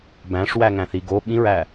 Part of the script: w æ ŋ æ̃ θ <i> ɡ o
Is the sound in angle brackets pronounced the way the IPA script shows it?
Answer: yes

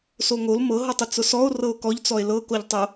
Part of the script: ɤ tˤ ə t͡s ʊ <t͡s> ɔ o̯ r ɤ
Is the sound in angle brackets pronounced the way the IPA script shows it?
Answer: no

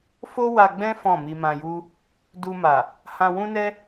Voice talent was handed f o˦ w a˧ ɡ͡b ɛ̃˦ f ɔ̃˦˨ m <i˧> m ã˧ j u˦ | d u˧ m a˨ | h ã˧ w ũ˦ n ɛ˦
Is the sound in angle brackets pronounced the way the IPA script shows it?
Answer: yes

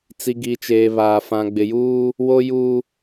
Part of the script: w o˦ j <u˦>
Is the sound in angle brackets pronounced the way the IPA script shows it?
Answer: yes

